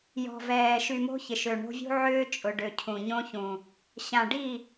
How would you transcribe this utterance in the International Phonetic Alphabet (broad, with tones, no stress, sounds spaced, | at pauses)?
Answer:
j ɔ̤˨ v ɛː˨ ʃ y˨ m o̤˦ ç ɪ˨ ʃ ø˨ ɳ o̤˦ vʲ ṳ˦ ʕ ʏː˦ t͡ʃʼ ʊ˨ ɖ ø˨ cʰ ũ˨ ɲ õ˦ ç ũ˨ | ɕ ã˨ ɖ i˦˨